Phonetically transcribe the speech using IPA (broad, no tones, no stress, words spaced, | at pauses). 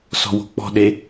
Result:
sɔ̤wo̤k͡pɔ̤ɗe